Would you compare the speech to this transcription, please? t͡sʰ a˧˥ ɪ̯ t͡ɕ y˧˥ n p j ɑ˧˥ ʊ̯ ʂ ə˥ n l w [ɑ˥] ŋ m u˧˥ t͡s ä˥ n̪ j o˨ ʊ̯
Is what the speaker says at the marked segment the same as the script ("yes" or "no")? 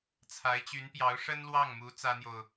no